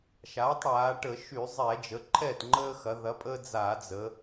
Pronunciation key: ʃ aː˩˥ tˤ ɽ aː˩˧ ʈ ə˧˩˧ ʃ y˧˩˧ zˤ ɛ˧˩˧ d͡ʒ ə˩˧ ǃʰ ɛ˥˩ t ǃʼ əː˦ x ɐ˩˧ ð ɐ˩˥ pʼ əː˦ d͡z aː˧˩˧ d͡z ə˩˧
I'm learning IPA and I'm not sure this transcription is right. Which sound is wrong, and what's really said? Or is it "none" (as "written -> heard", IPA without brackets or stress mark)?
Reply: ǃʼ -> ŋ͡ǃ